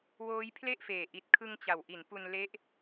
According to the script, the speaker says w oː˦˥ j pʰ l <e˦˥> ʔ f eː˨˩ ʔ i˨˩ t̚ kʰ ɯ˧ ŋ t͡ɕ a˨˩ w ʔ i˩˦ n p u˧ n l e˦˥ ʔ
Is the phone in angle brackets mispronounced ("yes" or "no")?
yes